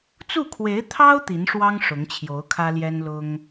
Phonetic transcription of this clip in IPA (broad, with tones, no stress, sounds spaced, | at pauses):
t͡s u˥˩ kʰ w e˧˥ ɪ̯ t̪ʰ ɑ˥ ʊ̯ t̪ i˧˥ n ʂ w ɑ˥ ŋ ʂ ʊ˧˥ ŋ t͡ɕʰ j o˧˥ ʊ̯ kʰ ä˥ l j ɛ˥ n l ʊ˥ ŋ